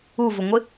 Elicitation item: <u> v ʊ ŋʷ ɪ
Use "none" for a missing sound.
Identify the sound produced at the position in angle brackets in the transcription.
u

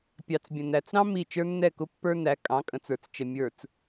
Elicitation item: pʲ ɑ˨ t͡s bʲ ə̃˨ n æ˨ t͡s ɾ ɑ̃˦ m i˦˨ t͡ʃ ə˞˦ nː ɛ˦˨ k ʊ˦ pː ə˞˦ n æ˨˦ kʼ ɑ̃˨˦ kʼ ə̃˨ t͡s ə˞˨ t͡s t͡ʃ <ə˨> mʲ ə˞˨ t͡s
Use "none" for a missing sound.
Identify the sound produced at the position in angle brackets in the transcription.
ə˨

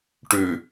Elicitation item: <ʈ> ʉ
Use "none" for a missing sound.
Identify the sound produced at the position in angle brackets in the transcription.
ʈ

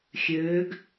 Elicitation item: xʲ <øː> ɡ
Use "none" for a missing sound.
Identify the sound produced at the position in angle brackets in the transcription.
øː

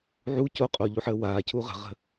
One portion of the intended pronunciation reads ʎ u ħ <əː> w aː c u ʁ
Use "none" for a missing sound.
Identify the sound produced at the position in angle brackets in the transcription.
əː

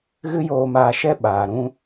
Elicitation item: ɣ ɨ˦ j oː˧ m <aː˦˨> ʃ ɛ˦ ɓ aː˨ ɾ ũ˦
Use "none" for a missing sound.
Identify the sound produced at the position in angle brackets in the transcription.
aː˧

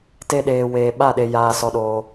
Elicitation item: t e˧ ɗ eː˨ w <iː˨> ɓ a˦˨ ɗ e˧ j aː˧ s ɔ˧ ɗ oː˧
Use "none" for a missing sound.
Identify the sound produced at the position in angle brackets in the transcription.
eː˨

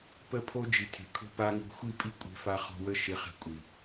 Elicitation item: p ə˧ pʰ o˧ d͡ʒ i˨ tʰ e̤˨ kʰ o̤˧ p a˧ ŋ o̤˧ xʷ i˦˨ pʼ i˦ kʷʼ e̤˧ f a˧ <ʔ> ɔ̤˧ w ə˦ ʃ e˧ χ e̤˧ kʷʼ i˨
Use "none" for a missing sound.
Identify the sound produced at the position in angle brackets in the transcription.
χ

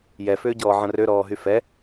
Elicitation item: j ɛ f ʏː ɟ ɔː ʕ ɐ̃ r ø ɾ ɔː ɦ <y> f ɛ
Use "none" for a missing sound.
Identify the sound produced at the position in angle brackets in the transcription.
y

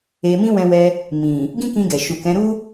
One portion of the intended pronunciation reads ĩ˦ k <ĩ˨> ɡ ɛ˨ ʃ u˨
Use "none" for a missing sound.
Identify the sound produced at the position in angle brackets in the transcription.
ĩ˧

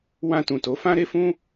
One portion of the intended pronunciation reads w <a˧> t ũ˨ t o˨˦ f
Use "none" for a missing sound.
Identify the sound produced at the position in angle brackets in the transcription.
ã˧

